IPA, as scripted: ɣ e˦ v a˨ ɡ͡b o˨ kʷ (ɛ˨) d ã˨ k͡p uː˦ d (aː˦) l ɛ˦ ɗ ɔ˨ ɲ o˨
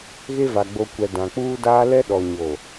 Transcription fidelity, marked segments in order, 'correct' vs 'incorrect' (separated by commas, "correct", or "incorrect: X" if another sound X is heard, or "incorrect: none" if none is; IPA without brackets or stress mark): correct, correct